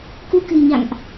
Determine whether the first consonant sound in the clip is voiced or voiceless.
voiceless